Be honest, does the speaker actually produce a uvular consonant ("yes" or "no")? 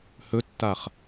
yes